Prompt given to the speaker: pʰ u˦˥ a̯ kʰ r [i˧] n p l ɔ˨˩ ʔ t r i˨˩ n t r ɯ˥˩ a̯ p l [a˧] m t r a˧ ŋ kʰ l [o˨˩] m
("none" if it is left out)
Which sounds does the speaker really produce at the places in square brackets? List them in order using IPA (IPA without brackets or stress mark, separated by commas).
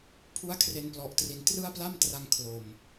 e˧, a˥˩, o˨˩